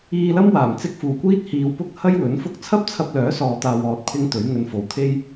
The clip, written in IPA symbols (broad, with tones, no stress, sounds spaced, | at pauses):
iː˧ l ɐ˥ m w aː˨˩ m t͡s ɪ˧ k̚ f uː˨˩ kʷ iː˥ t̚ h iː˨ w p ʊ˥ k̚ h ɐ˥ j w ɵ˨˥ n f ʊ˥ k̚ t͡sʰ ɐ˥ p̚ t͡sʰ ɐ˧ p̚ l œː˨˥ s ɔː˧ t̪ aː˧ w ɔː˧ t̚ pʰ ɪ˥ ŋ t̪ ɵ˨˥ ɥ ŋ ɵ˧ n f o˨˧ w t̪ʰ e˥ j